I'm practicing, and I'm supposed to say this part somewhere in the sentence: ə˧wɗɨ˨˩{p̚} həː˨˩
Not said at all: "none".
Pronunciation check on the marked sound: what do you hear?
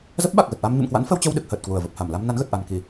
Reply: k̚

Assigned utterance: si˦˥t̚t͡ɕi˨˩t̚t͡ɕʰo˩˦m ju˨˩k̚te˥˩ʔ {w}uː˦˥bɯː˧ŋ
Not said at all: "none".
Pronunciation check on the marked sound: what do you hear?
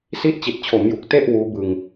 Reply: w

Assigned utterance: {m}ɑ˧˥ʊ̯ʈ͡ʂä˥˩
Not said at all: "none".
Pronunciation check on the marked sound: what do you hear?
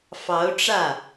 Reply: f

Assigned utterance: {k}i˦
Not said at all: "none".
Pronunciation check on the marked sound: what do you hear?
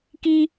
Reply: k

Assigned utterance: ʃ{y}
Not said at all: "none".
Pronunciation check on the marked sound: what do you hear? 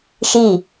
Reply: i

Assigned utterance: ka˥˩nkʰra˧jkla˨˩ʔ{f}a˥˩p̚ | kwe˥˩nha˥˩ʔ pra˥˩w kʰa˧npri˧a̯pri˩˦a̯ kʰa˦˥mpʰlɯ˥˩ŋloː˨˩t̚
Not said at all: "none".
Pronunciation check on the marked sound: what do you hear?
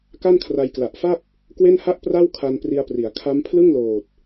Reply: f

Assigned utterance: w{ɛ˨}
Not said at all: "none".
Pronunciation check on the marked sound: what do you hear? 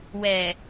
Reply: ɛ˨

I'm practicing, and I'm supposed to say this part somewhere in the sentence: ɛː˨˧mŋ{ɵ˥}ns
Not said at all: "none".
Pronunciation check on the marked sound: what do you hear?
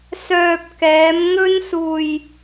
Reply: ɵ˥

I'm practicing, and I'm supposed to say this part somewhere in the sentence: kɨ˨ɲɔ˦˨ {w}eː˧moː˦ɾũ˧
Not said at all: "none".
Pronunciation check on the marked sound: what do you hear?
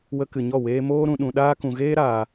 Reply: w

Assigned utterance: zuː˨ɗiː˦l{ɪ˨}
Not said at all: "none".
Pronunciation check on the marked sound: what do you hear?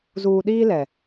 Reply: ɛ˨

